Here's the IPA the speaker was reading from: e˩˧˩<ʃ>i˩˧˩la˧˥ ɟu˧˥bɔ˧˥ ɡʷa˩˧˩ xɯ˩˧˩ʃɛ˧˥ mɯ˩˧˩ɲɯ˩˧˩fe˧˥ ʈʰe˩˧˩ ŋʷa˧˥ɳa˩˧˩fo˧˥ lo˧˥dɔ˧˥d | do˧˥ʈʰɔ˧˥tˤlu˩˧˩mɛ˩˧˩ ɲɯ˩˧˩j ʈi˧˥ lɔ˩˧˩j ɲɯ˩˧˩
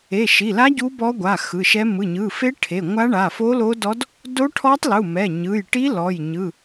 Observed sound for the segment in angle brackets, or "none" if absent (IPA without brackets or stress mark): ʃ